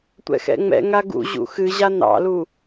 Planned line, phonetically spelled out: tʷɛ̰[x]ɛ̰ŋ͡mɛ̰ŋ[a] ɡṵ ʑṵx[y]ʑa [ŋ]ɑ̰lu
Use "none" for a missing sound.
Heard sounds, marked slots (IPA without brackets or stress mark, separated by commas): x, a, ɨ, n